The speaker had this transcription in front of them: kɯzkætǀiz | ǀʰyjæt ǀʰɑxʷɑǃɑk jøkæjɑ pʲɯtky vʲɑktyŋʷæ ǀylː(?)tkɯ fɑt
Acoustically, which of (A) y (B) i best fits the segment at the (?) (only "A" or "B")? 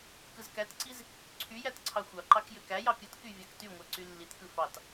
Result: B